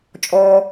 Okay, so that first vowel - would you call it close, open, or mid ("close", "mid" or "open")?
mid